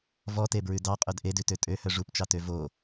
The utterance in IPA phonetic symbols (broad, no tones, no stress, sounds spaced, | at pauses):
v ɔ t e b ɹ ʉ d ɑ qʼ œ d ʔ e d ʉ t ø tʼ ø h œ ʐ u p t͡ʃ ɑ t ø v o